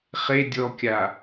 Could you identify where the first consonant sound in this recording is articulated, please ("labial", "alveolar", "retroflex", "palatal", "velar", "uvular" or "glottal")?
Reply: uvular